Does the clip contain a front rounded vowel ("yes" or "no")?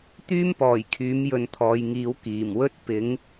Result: yes